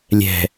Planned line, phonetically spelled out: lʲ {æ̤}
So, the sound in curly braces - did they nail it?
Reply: no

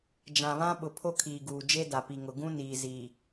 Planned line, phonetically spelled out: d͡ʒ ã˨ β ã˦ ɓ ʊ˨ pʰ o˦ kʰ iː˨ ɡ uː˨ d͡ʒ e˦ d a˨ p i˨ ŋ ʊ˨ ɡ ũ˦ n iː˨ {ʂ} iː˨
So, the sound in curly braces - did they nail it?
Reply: no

